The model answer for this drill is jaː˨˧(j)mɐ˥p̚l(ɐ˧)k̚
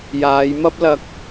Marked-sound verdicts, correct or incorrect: correct, correct

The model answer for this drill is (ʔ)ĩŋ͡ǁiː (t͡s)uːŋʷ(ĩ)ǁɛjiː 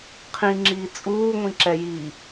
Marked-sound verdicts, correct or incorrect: incorrect, incorrect, correct

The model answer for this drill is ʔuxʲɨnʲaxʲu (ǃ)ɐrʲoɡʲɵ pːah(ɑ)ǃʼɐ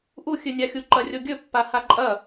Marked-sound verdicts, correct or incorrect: correct, incorrect

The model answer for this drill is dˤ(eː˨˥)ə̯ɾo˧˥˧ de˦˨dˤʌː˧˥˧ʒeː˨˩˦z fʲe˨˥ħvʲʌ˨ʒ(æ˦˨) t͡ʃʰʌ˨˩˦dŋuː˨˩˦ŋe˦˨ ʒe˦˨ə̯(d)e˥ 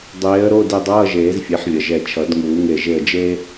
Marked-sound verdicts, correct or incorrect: correct, incorrect, incorrect

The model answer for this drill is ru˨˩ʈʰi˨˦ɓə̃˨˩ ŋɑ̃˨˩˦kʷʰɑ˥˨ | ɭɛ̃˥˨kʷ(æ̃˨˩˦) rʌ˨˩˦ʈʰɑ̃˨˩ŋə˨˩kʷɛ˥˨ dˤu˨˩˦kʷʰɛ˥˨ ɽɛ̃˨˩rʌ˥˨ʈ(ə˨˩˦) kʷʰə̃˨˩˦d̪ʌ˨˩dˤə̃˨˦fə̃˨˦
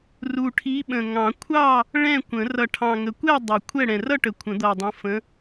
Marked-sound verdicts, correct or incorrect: incorrect, correct

